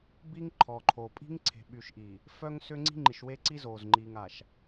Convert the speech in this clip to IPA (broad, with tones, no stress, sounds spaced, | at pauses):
b i˦ ŋ ǃʰ ɔ˨ ǃʰ o˨ pʼ i̤˦ ŋ ǀʰ e̤˨ ɓ y˨ ʃ ʔ i˨ | f œ˦ ŋ s ʏ˦ ŋ͡ǀ i̤˦ ŋ͡ǃ i˨ ʃ w e˦ ǀ i˦ z oː˨ z ŋ͡ǃ iː˨ ŋ a˨ ʃ